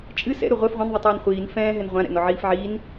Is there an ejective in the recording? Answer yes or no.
yes